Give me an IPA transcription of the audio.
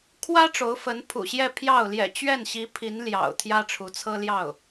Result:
kʰ w ä˥ ʈ͡ʂ o˧˥ ʊ̯ f ə˧˥ n pʰ ṵ˨˩ ɕ j ɛ˥˧ pʰ j ɑ˥˩ ʊ̯ l j ɛ̰˨˩ t͡ɕ ɥ ɛ˥˩ n ɕ i˧˥ pʰ i˧˥ n l j ɑ̰˨˩ ʊ̯ t̪ʰ j ä˥ ʈ͡ʂʰ u˧˥ t͡sʰ ɤ˥ l j ɑ˥˩ ʊ̯

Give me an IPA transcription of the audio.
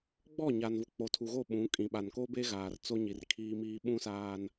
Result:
ɡ͡b ɔ˦˨ ɲ a˨ n v ʊ˨ k͡p o˨ tʰ u˨ ɣ o˦˨ ɓ ũ˨˦ kʼ ĩ˨ ɓ a˨ n k o˦ b e˦ ɣ aː˨ r t͡s o˦ ɲ i˨ r kʰ iː˦ m iː˦ ɓ ũ˦ s aː˦ n

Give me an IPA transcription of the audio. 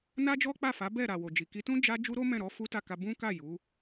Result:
n a˦ d͡ʒ ɔ˦ k͡p a˦˨ f a˨˦ b ɛ˦˨ ɾ a˨ w o˨ d͡ʒ i˨ k i˨˦ t ũ˦ d͡ʒ a˦ d͡ʒ u˦ ɾ o˦ m ɛ̃˦˨ ɾ ɔ˨˦ f u˦ t a˦˨ k a˧ b ũ˦ k a˦˨ j u˨˦

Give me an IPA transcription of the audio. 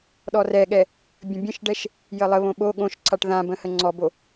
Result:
ɗ ɔ r ɛ ɠ ɛ | bʲ ə̃ bʲ ə̃ ʃ ɖ ɛ ʃ | j ə lˠ ə β õ ɓ o ɠ õ ʃ ǀʰ a ʈ ð ã b ə̃ h ə ŋ͡ǀ ɔ b o

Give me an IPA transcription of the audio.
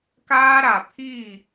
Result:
k aː˦ ɾ a˨ pʰ iː˦˨

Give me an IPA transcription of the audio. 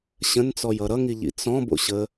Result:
ɕ ə̃ n t͡s ɔ j ʌ ɾ ʌ ŋ i ʎ ḭ t͡s ɔ̃ b o̰ ɕ ə

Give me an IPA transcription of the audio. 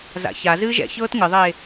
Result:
z a̰ ç a z ɨː ʒ ɛ̰ ç ɤː t ŋ ɨ ðˤ eː

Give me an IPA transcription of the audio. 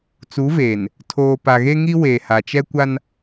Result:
t͡s u˨˦ v eː˨ n | tʰ oː˨ p a˨ ɣ e˦ ŋ i˦ w eː˨ h a˨ t͡ʃ ɛ˦ kʷ a˦ n

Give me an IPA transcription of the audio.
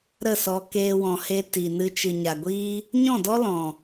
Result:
ɾ ə˦˨ s ɔ˧ k eː˧ w ɔ̃˨ h e˧ t i˨ n ɨ˧ t͡ʃ ɨ˨ ɲ a˨ ɡʷ iː˦ | ɲ ɔ̃˦˨ d ɔ˦ l ɔ̃˨

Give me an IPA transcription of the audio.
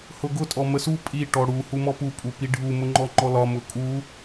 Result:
h ʊ ɡ ʊ tʼ ɔ m ə s u pʼ i ʈ ɔ ɽ u h u m ɔ p u pʼ u p i ɖʱ u m ʊ ŋ͡ǃ ɔ ŋ͡ǃ ɔ l ɒ m ʊ kʼ u

